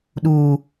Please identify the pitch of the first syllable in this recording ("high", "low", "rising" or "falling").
low